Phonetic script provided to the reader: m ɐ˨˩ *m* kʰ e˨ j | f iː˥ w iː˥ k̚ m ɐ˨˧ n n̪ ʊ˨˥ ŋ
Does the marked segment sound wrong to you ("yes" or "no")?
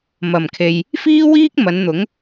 no